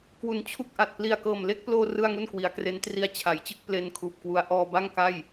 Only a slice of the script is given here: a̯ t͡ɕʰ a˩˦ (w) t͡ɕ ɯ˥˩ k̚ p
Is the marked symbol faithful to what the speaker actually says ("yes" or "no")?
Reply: no